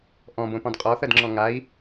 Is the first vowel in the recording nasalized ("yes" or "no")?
yes